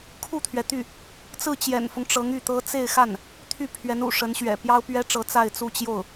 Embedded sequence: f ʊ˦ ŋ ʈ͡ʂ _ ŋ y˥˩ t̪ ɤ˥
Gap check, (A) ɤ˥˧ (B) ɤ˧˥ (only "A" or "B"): B